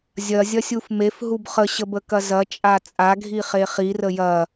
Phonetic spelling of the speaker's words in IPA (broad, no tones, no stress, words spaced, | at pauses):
zʲɐzʲɐsʲuf mefɦub χəɕəbəkɐ zɐt͡ʃʼa t͡sʼaɡʱiχe χirə jɐ